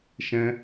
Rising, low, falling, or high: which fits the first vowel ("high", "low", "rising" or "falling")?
high